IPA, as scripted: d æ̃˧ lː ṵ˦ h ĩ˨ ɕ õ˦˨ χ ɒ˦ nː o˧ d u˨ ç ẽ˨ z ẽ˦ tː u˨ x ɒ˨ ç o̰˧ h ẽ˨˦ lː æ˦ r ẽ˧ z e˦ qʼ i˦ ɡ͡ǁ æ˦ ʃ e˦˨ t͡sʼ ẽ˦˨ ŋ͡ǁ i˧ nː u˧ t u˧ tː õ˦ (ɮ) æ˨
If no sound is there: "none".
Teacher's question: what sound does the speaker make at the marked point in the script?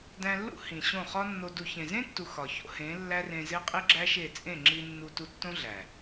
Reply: ɮ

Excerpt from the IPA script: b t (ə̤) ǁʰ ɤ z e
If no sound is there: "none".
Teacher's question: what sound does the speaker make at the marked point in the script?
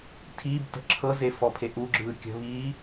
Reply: ə̤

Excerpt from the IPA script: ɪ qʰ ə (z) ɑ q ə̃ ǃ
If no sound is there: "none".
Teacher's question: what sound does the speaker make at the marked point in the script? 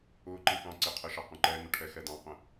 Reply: ʃ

